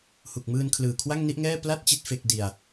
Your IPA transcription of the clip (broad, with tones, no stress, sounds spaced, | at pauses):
h u˨˩ k̚ m ɯː˧ n kʰ l ɯː˨˩ kʰ w a˥˩ ŋ n i˥˩ ʔ ŋ ɛː˥˩ p l a˥˩ t̚ t͡ɕ i˥˩ t̚ f e˥˩ k̚ d i˧ a̯